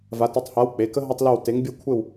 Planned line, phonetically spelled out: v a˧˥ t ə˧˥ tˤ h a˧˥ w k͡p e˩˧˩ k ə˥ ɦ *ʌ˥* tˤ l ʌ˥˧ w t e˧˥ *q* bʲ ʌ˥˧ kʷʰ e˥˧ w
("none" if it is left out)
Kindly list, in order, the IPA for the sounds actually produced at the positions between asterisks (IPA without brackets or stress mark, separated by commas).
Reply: ʌ˥, ŋ